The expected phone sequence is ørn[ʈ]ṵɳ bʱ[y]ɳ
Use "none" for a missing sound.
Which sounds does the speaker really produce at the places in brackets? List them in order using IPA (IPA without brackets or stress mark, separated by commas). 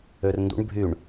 d, y